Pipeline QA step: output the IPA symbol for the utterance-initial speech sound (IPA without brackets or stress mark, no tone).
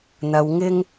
n̪